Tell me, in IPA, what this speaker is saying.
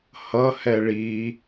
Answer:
h ʌ h ɛ ɭ i

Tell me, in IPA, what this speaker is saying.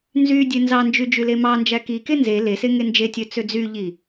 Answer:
n z y dʲ ø n z ɑ n d͡ʒ y d͡ʒ y l e m ɑ n d͡ʒ æ k i k e n z e l e s e ŋ e n d͡ʒ e tʲ ø t͡s ø d͡z y ʎ i

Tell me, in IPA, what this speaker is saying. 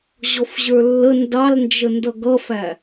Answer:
ʑ ɔ f ʑ ə˞ lː ə n d ɑ l n d͡ʒ ə n d ʌ ɡ ʌ f æ

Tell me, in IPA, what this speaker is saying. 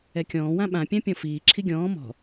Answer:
ɛ kʲ ɔ̃ː w ã ɓ ã pʲ ã pʲ ɔ̃ f iː ǁʰ i ɡʲ ɔ̃ː m ɔ̤

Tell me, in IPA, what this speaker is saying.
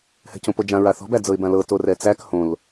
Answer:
h ɛ̤ c õ p o d͡ʒ ã ɹ a θ ɔ̤ b æ d͡z ɤ ɪ̯ b ã l ɤ t o r ɛ t͡s æ k h õ l

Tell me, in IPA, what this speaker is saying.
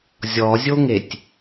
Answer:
zʲ ɔ zʲ o ŋ e tʲ

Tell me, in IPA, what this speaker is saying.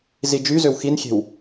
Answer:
z i d͡ʒ y z ø w x i n xʲ e̤ w

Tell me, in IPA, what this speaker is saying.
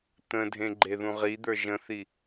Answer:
t̪ ə̃ dʱ ẽ ɡ͡ǃ e ð ũ ʁ i d̪ ə˞ ʒ ə̃ θ i

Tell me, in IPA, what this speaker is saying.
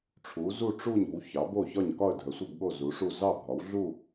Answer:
ʈ͡ʂʰ u˩˧ z u˦˨ ʈ͡ʂ u˦˨ ɲ o̤˩˧ w ç ɑ˩˧ b o˦˨ ç ɒ˦˨ ɲ k ɒ˦˨ ə̯ dʱ ə˩˧ sʷ ə˦˨ b ɠ o˦˨ z u˩˧ ʂ u˦˨ z ɑ˦˨ bʱ ɒ˩˧ w ɮ u˦˨

